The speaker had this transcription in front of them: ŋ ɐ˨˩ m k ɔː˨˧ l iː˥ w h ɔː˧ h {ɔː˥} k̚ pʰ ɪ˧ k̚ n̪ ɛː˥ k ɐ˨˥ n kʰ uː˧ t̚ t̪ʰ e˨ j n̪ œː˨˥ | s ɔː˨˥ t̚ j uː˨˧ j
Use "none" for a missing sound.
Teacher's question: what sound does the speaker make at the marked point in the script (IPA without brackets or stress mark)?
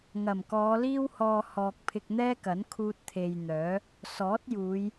ɔː˨